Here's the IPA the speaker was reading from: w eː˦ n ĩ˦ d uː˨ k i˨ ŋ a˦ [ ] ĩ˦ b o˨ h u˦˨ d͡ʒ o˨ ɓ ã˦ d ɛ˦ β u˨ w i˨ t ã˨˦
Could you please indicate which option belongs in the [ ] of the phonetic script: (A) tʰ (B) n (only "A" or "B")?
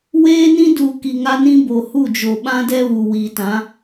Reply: B